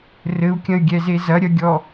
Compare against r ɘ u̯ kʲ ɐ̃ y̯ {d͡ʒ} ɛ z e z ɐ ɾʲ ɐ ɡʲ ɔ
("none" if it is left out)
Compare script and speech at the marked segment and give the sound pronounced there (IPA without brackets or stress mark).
ɡʲ